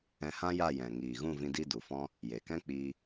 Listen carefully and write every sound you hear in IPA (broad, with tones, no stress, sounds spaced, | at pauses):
ɛ̃˧ h ã˦ j a˦˨ j ɛ̃˨ ŋ iː˨ ɣ ũ˦˨ v ĩ˧ d i˦ d u˨ f ɔ̃˦ | j e˨ k ɛ̃˦ k͡p iː˧